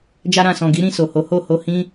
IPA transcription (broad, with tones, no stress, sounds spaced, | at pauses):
d͡ʒ a˧ ɾ ã˨ s ɔ̃˨ ɡ i˨˦ ɾ ĩ˦˨ s o˨ h o˨˦ h o˦˨ h o˧ h ĩ˦